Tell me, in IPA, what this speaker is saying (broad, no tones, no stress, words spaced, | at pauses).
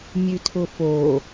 mʲʉtʰʊfo